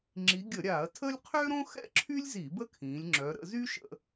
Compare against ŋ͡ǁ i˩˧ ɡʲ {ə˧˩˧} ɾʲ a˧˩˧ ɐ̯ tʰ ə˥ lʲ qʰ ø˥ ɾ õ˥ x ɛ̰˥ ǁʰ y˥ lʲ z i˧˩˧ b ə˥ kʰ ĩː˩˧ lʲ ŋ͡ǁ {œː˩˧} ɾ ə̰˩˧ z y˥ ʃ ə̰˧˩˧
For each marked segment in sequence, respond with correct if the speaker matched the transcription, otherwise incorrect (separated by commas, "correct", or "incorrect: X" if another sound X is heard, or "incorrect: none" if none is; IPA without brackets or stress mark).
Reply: correct, incorrect: œ˩˧